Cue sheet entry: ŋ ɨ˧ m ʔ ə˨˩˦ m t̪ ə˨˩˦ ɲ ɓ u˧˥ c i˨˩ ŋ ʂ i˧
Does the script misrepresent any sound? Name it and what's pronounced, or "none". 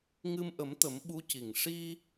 ɲ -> m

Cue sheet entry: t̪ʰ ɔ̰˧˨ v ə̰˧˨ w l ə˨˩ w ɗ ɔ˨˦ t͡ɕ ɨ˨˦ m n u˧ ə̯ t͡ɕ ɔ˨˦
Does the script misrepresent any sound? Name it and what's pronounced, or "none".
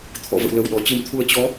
n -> t̪ʰ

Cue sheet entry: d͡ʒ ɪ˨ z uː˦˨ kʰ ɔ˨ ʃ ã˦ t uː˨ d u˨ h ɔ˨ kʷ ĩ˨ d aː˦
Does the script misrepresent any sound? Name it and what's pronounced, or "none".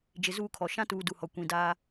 none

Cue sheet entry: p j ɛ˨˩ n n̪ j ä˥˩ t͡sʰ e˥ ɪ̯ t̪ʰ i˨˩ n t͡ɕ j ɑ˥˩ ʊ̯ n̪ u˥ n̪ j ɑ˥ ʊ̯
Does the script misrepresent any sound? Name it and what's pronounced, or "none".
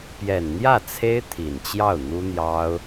none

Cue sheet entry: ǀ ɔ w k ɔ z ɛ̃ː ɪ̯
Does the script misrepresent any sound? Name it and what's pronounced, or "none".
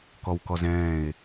ǀ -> k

